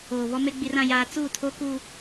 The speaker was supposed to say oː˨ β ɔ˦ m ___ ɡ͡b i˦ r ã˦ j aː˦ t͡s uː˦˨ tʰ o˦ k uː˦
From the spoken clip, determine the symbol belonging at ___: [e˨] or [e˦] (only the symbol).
e˦